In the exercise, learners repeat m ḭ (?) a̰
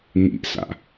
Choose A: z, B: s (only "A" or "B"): B